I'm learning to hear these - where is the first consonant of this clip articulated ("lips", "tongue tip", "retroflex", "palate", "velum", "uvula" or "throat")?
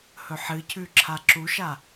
throat